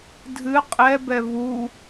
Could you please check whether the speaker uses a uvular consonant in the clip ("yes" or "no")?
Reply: yes